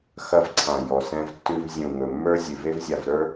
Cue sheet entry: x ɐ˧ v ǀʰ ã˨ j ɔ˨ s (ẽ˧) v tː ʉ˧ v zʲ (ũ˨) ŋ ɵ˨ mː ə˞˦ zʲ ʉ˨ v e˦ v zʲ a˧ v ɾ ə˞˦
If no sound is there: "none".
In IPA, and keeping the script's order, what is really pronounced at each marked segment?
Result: ɛ̃˧, ũ˨

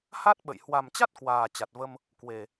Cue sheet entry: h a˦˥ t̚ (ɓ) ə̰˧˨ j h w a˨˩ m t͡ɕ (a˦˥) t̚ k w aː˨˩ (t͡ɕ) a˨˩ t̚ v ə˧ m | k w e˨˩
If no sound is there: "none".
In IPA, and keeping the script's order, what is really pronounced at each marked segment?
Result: ɓ, a˦˥, t͡ɕ

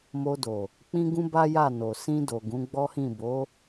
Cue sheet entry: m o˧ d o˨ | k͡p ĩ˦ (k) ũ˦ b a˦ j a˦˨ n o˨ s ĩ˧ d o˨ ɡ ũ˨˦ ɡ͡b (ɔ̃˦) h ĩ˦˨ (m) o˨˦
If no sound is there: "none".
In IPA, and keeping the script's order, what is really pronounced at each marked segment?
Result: ɡ, ɔ˦, b

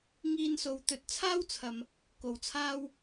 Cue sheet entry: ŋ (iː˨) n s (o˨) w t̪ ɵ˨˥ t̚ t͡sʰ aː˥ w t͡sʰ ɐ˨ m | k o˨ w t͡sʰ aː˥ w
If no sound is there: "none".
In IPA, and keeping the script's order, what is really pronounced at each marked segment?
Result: iː˧, o˨

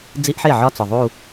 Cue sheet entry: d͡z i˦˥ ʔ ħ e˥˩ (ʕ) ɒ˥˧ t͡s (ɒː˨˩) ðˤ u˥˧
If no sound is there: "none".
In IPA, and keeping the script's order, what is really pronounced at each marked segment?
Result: ʕ, ɒ˨˩

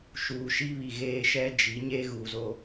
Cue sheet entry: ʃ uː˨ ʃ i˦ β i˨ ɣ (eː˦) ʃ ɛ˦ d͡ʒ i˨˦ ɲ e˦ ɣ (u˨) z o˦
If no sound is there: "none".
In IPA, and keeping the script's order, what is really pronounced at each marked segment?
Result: eː˦, u˨

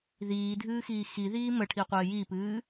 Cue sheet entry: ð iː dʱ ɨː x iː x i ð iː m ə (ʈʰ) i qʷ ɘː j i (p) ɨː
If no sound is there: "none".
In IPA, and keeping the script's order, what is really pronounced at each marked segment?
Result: ʈʰ, p

